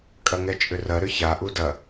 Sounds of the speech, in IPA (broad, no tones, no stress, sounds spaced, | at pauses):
kʼ ɐ ŋ ɛ t͡ʃʼ ʏ r ɐ ɾ ʏ ç a ʔ u d ɐ